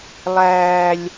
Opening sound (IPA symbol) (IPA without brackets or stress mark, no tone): lˠ